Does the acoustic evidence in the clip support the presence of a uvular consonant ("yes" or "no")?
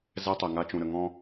no